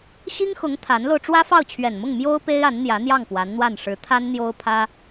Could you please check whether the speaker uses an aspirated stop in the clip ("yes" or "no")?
yes